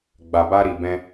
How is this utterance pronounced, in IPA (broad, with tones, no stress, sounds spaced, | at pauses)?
ɡ͡b a˧ b a˦ ɾ i˧ b ɛ̃˦